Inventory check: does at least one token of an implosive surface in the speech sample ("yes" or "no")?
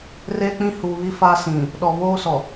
yes